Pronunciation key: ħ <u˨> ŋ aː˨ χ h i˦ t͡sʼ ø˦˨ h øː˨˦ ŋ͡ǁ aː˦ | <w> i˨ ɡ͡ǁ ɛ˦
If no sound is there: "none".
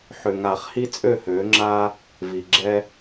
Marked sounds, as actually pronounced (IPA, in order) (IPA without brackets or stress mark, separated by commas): ʏ˨, v